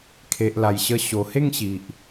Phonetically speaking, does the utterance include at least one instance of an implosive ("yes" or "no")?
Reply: no